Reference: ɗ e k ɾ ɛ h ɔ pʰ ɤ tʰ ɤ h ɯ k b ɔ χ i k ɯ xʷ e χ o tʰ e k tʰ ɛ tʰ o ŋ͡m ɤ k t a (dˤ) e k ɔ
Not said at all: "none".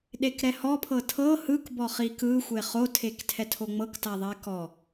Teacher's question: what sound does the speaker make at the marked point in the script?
ðˤ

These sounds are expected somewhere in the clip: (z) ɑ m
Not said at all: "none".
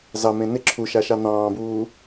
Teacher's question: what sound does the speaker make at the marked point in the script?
z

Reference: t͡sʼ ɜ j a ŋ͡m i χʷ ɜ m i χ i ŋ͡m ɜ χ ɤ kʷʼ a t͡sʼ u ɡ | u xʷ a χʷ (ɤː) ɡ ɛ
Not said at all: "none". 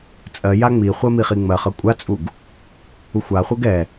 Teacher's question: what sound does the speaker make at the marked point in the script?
ɤ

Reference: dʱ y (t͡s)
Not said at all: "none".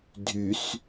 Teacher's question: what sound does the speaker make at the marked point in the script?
s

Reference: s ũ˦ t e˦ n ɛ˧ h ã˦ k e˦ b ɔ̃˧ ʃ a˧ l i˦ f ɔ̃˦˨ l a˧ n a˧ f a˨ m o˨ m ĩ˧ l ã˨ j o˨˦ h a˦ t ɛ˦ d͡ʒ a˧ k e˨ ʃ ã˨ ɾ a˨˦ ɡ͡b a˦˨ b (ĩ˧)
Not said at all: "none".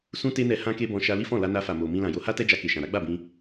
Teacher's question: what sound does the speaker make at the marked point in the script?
ĩ˧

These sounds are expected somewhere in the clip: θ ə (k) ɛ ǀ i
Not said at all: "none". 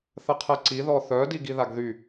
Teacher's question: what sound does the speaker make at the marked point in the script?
qʰ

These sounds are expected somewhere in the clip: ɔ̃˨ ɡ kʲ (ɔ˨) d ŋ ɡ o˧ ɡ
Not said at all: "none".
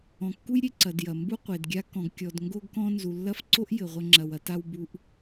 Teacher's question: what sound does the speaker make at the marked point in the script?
ɔ˨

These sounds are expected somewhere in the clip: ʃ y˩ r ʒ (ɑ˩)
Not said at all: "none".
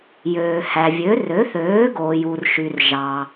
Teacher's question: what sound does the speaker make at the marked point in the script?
ɑ˩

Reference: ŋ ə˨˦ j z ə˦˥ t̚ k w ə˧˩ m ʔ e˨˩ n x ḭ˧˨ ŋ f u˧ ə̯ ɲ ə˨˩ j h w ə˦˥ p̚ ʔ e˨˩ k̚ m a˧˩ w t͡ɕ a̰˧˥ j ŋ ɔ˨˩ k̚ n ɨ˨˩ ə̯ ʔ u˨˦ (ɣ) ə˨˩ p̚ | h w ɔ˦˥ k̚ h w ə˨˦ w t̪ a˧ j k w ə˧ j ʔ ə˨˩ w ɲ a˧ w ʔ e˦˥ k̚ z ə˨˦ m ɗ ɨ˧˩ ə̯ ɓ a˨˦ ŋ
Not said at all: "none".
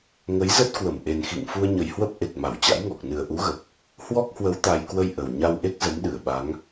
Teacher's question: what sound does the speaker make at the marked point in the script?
ɣ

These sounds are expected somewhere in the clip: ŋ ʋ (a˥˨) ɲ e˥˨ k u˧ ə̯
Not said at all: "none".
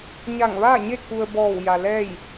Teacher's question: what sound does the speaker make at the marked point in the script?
aː˥˨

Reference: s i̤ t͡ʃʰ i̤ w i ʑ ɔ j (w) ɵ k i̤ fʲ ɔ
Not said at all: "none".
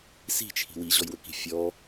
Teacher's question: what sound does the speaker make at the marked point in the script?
w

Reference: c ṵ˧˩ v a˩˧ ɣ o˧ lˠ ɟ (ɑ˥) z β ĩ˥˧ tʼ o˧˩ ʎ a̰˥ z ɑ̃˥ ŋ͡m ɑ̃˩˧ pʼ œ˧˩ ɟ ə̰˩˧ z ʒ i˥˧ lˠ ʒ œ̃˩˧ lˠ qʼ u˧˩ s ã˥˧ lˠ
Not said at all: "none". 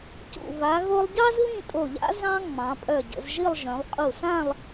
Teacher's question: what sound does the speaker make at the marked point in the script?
ɑ˥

